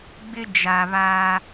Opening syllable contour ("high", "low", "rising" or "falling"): high